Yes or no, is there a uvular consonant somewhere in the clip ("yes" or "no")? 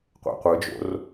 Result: yes